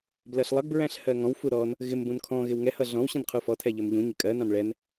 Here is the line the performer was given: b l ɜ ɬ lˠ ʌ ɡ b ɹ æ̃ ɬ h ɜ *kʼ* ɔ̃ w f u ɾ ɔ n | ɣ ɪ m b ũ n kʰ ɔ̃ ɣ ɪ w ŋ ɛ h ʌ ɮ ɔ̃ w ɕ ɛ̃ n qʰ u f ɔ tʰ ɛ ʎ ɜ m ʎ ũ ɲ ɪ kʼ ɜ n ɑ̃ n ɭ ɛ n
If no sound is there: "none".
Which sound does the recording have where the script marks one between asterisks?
ŋ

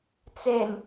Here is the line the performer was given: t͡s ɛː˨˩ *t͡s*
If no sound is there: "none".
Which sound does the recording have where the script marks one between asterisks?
n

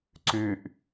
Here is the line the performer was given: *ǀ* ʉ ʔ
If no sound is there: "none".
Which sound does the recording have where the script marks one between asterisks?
ǀ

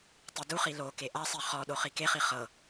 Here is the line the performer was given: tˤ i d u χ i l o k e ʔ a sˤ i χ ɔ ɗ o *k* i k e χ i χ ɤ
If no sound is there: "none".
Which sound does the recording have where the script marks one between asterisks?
χ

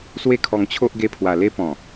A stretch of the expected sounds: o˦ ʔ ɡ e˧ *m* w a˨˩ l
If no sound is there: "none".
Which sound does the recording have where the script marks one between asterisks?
pʰ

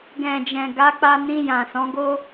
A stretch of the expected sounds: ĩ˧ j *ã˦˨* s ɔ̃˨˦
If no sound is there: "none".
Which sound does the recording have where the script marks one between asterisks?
ã˨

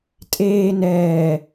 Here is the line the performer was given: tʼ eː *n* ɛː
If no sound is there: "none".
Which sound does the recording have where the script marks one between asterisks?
n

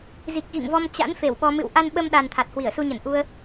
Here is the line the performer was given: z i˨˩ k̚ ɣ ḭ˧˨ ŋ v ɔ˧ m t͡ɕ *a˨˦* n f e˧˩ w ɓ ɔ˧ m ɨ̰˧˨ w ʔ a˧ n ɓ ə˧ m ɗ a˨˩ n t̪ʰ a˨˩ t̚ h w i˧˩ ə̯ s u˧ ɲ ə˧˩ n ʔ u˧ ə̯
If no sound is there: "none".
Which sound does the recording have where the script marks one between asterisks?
a̰˧˥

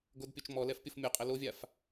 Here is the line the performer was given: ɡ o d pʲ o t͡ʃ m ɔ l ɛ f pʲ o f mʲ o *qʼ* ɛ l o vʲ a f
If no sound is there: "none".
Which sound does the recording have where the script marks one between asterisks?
qʼ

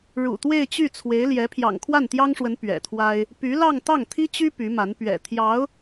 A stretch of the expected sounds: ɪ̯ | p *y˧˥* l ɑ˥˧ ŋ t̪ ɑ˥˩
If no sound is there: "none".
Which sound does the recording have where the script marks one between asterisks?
y˧˥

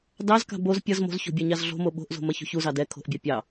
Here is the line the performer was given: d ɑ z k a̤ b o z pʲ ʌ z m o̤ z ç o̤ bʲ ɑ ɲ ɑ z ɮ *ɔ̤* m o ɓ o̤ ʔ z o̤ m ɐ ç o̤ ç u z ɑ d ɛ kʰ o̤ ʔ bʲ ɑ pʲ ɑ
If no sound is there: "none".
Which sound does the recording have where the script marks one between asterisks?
o̤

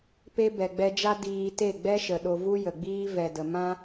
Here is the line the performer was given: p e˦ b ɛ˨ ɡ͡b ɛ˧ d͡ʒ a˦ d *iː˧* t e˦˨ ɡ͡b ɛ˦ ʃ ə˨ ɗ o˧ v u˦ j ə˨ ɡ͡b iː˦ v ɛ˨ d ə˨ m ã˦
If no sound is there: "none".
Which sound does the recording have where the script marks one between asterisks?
iː˧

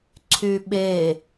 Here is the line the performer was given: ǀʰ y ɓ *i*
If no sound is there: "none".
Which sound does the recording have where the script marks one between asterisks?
e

